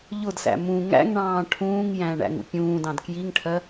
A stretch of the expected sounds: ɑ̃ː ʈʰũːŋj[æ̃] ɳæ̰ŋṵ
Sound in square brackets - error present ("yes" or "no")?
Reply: no